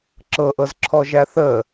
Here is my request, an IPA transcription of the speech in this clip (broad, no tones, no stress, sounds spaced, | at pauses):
ǁ ɤ ʔ ɤ z ǁʰ ɔ ʒ æ θ ə